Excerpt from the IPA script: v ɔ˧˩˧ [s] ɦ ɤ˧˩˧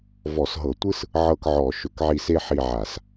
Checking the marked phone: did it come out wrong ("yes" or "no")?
no